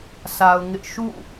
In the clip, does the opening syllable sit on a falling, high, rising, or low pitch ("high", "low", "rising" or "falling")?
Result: low